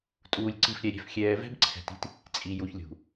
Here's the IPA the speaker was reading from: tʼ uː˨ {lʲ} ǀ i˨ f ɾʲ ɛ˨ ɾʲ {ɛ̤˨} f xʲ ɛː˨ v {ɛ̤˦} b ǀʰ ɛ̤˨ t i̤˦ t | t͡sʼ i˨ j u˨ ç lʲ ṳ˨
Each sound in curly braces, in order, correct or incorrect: correct, correct, correct

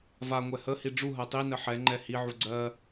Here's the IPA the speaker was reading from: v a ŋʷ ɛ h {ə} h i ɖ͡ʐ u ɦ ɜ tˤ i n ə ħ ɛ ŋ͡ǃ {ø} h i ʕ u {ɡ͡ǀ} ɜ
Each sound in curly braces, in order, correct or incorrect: correct, incorrect: ɛ, correct

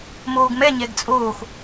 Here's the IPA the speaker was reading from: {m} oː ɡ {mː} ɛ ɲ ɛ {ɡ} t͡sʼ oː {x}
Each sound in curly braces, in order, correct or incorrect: correct, incorrect: m, correct, correct

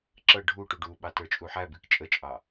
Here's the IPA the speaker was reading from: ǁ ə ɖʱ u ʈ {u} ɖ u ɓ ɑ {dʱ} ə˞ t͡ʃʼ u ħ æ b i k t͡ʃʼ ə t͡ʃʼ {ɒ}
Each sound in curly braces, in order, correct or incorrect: correct, incorrect: t, incorrect: ɑ

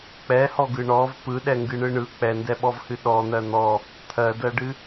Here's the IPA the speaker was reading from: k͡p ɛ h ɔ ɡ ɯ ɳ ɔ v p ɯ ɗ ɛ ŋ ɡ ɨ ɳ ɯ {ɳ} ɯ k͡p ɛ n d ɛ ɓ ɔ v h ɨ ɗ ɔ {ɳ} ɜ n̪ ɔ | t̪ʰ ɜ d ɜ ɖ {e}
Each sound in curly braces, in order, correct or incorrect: correct, incorrect: n̪, incorrect: ɨ

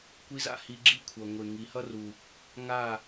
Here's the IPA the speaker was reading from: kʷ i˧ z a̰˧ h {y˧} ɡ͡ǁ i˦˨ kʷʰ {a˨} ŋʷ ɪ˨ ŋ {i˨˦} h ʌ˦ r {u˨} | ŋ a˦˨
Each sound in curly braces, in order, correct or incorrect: incorrect: i˧, incorrect: ʌ˨, correct, correct

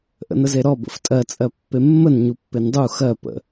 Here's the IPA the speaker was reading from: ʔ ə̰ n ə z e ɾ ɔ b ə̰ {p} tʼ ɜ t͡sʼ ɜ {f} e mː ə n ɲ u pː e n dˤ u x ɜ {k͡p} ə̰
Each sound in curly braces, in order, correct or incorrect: incorrect: f, incorrect: pː, incorrect: p

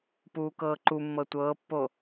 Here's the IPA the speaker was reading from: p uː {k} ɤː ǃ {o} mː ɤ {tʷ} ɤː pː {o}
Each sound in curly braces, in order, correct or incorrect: correct, incorrect: u, correct, correct

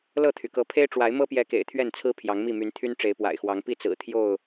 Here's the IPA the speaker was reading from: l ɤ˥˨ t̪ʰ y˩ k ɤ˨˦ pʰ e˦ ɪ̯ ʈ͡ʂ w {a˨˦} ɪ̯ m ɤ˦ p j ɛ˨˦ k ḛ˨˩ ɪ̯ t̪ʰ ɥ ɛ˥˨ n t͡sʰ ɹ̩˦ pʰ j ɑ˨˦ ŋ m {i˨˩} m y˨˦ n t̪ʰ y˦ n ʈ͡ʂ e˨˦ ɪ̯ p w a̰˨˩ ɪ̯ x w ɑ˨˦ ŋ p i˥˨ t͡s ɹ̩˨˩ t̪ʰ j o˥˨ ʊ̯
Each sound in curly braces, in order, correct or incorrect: correct, incorrect: i˥˨

